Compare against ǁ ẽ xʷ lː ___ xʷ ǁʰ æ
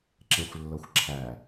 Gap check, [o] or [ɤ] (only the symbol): ɤ